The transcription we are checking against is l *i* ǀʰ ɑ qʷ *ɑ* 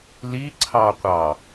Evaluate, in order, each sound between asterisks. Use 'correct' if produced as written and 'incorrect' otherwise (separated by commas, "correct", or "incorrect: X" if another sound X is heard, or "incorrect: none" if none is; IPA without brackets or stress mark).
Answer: correct, correct